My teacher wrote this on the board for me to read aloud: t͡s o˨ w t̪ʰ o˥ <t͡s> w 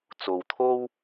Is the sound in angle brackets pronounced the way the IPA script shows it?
no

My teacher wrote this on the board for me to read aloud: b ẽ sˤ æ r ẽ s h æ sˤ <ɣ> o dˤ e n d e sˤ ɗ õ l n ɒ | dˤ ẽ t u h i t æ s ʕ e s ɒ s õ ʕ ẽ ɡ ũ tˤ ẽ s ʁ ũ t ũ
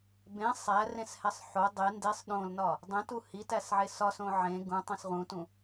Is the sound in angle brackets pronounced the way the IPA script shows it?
no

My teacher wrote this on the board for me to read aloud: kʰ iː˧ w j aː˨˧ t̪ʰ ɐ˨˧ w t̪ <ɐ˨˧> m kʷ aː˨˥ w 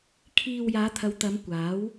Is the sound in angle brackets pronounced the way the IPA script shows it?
yes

